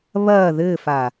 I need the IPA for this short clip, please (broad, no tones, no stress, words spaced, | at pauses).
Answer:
βɐː ðɘːfa